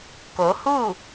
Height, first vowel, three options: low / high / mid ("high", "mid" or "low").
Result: mid